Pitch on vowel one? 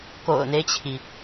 low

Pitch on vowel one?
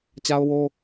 high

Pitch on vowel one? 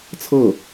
falling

